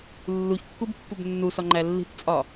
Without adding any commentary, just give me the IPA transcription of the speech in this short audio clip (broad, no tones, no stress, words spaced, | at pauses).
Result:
lːuçkːubpːub nːusɒŋ͡ǃæ lːi̤tt͡sʼɒ